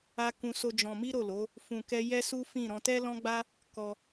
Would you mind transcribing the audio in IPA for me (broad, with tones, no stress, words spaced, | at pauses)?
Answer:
a˦ kũ˧so˧ d͡ʒɔ̃˧mi˦ɾo˦˨lo˨˦ | fũ˧kɛ˦ jɛ˦su˦fĩ˦˨ ɾɔ̃˧tɛ˦lɔ̃˦ɡ͡ba˦ | kɔ˧